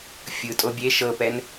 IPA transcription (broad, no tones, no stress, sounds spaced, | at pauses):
fʲ ɯ tʼ o bʲ e ʃ ɤ p ɛ n